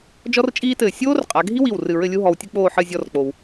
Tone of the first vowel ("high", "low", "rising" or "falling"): high